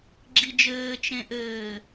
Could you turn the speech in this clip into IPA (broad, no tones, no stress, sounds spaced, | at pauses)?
ɡ͡ǁ i d͡ʒ ɘː t͡ʃ ẽ ʔ ɘː